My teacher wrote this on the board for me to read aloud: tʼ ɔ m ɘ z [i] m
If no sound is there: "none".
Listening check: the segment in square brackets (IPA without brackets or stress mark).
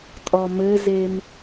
e